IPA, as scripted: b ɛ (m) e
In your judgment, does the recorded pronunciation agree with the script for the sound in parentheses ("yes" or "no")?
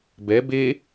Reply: no